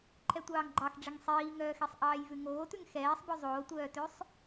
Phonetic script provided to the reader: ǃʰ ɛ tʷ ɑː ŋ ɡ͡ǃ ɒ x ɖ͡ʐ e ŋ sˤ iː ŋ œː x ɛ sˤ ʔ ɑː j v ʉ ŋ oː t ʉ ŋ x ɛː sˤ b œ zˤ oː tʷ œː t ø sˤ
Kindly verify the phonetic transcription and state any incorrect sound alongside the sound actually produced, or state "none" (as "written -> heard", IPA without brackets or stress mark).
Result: ɒ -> ɑ